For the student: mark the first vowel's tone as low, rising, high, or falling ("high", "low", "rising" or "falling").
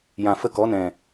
low